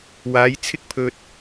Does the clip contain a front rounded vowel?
no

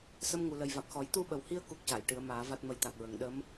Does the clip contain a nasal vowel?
no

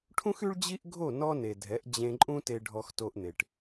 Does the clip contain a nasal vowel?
yes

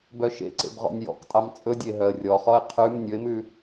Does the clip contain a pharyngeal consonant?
no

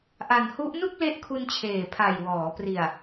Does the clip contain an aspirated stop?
yes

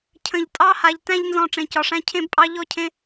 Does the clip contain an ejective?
yes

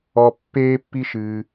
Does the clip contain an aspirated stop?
no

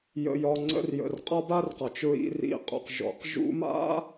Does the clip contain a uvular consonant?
yes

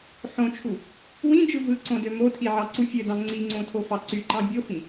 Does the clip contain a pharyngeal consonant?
yes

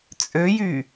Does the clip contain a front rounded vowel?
yes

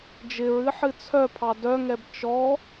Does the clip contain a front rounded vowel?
yes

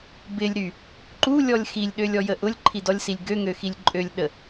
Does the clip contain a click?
yes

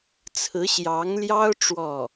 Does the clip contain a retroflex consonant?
yes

